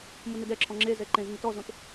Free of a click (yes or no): no